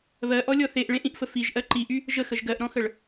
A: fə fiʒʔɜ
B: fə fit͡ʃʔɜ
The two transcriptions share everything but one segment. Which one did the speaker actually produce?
A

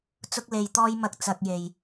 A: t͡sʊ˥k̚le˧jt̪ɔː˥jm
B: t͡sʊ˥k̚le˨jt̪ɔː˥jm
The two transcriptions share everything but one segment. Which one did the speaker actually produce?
A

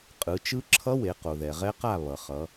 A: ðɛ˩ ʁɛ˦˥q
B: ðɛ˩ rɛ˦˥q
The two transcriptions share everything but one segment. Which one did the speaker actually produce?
A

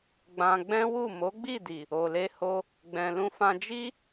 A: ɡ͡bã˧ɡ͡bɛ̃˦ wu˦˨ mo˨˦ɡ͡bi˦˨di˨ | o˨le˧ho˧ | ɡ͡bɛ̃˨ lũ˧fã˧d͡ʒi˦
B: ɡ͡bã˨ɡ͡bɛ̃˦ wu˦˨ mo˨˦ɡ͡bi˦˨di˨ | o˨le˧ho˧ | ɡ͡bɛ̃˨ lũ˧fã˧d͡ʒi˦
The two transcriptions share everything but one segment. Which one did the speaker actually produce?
A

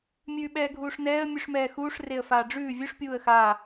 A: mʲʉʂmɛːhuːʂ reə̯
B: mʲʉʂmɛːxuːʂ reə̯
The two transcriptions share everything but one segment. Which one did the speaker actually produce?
B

